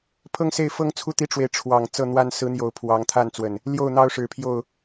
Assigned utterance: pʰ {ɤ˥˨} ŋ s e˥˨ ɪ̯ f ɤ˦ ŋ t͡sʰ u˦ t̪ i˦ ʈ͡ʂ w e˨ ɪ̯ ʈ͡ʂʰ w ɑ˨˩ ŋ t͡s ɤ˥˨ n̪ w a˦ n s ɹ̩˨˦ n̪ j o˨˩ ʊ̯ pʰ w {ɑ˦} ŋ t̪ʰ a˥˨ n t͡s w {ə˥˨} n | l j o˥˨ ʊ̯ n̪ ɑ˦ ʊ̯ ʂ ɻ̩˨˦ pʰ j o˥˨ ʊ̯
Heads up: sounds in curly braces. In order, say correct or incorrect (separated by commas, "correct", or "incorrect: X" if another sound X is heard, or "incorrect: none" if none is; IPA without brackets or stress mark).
incorrect: ɤ˦, incorrect: ɑ˨˦, incorrect: ə˨˩